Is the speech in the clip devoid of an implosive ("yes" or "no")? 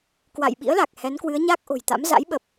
no